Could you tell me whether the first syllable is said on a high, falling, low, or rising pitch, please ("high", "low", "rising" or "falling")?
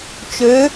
rising